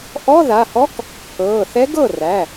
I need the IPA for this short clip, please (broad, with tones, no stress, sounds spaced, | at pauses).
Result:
ʔ ɔ˧˥˧ ð a˩˧˩ h ɔ˧˥ k | pʰ ɤː˩˧˩ θ ɛ˧˥ ɡ ɤ˥˩ r æ˩˧˩